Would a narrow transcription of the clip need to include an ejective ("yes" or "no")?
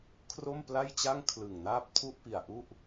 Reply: no